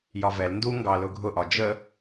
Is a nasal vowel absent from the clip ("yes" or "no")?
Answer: yes